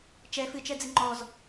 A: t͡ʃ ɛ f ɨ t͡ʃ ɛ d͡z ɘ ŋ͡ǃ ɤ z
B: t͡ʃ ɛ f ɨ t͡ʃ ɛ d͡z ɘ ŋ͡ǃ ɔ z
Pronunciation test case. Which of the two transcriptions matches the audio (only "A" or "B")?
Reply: B